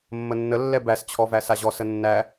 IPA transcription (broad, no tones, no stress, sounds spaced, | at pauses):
mː ə nː ə lː ɛ b æ s t͡ɕʰ ɔ v æ s a ʑ ɔ s ə nː æ